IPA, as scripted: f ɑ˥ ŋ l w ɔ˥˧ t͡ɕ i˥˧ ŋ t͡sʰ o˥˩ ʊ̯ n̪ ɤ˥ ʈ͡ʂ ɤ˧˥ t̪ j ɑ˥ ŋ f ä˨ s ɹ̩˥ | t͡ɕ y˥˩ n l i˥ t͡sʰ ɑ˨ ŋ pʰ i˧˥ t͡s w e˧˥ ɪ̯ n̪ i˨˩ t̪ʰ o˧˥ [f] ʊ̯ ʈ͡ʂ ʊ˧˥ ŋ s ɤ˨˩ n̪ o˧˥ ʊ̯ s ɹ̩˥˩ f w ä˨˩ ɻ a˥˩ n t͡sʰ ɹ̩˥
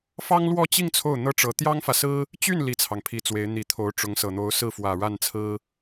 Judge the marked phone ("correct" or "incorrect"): incorrect